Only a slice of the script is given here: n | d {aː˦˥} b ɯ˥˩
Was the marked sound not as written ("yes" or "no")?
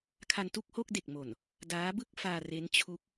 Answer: no